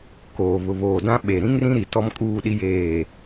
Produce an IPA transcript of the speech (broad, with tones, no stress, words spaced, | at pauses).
koː˨βʊ˨βoː˨dã˦ ɓe˨ ɾĩ˦ŋrĩ˦ɾi˨ tɔ˦mkʼuː˦˨ɗi˦jeː˦˨